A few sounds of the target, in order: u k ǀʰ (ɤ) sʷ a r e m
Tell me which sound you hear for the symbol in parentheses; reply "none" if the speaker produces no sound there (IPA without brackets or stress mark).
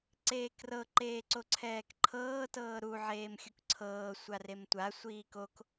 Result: ɤː